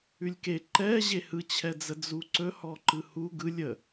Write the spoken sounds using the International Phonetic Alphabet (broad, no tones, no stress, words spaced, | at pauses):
ʉlʲke ǃɛ ʑehɯt͡ɕʰɛd͡zə d͡zuǀɵhɔǃɯ hu ɡɯ lʲə